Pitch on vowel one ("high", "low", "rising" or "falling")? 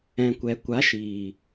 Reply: low